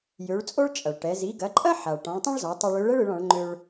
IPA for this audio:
j ø˩˧ ɭ t͡sʼ o˥ ɭ t͡ʃʼ ɐ˩ ɭ ʈ ɛ˩˧ z i˩˧ ɡ ɐ˩˧ ǃʼ ɐ˥ ħ a˩ ɭ ʈ ɔ̃˩˧ ɭ tˤ ɛ̃˥ ɭ z ɒ˩˧ tˤ ɯ˧ ɭ ø˧˥ ɭ ɛ˥ ɭ ɯ˩˧ ɭ ɔ̃˩˧ ɭ ŋ͡ǃ ø˧ ɭ

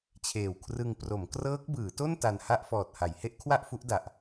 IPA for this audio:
t͡ɕʰ eː˨˩ w kʰ r ɯ˧ ŋ p r o˩˦ m k r ɤː˦˥ k̚ b ɯː˩˦ t o˥˩ n t a˧ n h a˥˩ ʔ f ɔː˨˩ t̚ h a˩˦ j h e˦˥ ʔ kʰ w a˥˩ ʔ f u˦˥ ʔ d a˨˩ ʔ

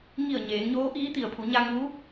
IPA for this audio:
ŋ i˧˩ ə̯ ɲ eː˩˧ ŋ ɲ oː˧˥ ʔ iː˧˥ t̪ i˩ ə̯ pʰ u˩˧ ɲ a˧ ŋ uː˧˥

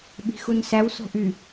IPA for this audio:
ɓ i̤ x u n s æ w s o̤ ʔ y

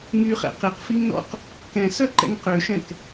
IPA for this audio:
ŋ y χ ɛ̰ q e q f i ŋ n ɔ̰ q | k ɛ̃ s œ ǃ ɛ̰ ŋ q ø ʃ ɛ̃ k

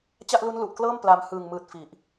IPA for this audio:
t͡ɕ a˥˩ ʔ l u˦˥ n l u˨˩ ʔ k l ɤː˥˩ m p l a˧ m h ɯː˨˩ ŋ m ɯː˨˩ t̚ f i˨˩ ʔ

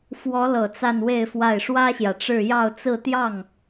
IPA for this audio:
f w ɔ˧˥ l ɤ˨˩ t͡s a˥˧ n w e˥˧ ɪ̯ f w a˥˩ ɪ̯ ʂ w ä˥ ɕ j ä˨ ʈ͡ʂ ɻ̩˥˧ j ɑ˥˧ ʊ̯ t͡s ɹ̩˥˧ t̪ j ɑ˥˩ ŋ

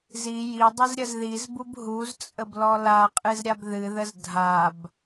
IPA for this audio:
z i j i dˤ ɨ z ɾʲ ə z ð i z b u b ɦ u z t͡sʼ ə b l ɔ l a qʼ ɨ z ɾʲ a b ð ɨ ð ə z dʱ a b

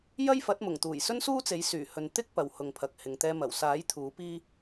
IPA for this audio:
j ɐ˥ j f ɐ˨˥ t̚ m ʊ˨˩ ŋ t̪ uː˨˩ j s ɵ˥ n s uː˥ t͡s e˨˥ j s yː˨˩ h ɵ˨ n t̪ ɪ˥ k̚ p ɐ˨ w h ʊ˨ ŋ pʰ ɐ˨ k̚ h ɪ˨ ŋ t̪ ɛː˧ m ɐ˨˩ w s aː˨˥ j t̪ʰ uː˨˥ p iː˥

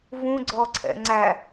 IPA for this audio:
v ũ ɡ͡ǀ ɔ ǀʰ ɛ̰ ŋ͡ǀ æ

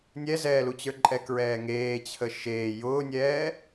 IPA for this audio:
nʲ ɛ z ɛː l u t͡ɕ ə˞ ǃʼ ɛ k ɹ ɛː ŋ eː t͡ɕʰ ə ʃ eː j ʊː nʲ ɛː

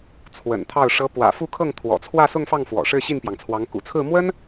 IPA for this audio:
t͡sʰ w ə̰˨˩ n t̪ʰ ɑ˥˩ ʊ̯ ʂ ɤ˧˥ p w ä̰˨˩ f u˥˧ kʰ ɤ˥˩ ŋ t̪ʰ w ɔ̰˨˩ t͡sʰ w ä˥˧ s ʊ˥˧ ŋ f ɑ˥˩ ŋ f w ɔ̰˨˩ ʂ ɻ̩˥˧ ɕ i˥˩ n p j ɑ˩ ŋ t͡sʰ w ɑ˧˥ ŋ k ṵ˨˩ t͡sʰ ɹ̩˥˩ m w ə˥ n

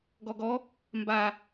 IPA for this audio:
ɡ ɔ ɡ ɔ | m b a

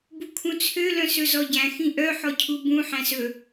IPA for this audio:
b u kʰ ũ t͡sʰ ø l œ̃ s ɵ z ɔ ɟ æ̃ x ĩ ʔ œ ħ ɔ cʰ u b ũ ħ æ̃ s ɵ

